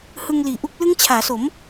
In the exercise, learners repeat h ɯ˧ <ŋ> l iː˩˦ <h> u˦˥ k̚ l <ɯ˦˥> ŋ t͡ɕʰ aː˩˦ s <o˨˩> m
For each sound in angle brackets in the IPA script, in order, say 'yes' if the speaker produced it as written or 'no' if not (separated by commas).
yes, no, yes, no